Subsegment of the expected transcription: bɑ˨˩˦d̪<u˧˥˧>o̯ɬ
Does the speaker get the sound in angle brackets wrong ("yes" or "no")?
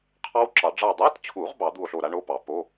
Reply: yes